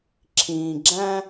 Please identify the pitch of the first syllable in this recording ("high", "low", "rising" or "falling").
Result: low